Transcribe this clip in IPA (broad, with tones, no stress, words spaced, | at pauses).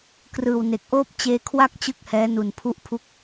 krɯː˨˩wne˨˩k̚ʔoː˥˩p̚ t͡ɕeː˧kʰwa˥˩k̚ t͡ɕɯ˥˩k̚hɛː˦˥ nu˨˩npʰu˦˥ʔ pʰu˥˩k̚